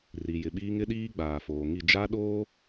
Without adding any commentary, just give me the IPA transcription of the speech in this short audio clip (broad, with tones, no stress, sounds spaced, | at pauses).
r i˨ j ɪ˨ ɓ iː˦ ŋ ɪ˦ ɗ iː˦ ɡ͡b aː˨ f oː˨ ŋ i˦˨ d͡ʒ a˦ ɗ oː˦